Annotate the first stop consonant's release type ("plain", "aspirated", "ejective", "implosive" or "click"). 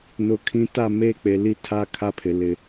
aspirated